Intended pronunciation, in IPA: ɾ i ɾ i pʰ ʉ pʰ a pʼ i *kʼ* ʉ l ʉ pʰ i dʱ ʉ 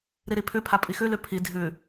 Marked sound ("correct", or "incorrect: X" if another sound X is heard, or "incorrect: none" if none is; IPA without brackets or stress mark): incorrect: x